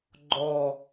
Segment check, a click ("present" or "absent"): present